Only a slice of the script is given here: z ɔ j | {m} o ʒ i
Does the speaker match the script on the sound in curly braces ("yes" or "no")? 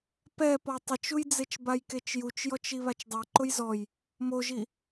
yes